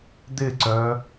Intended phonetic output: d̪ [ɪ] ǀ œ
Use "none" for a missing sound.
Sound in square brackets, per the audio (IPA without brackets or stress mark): ɪ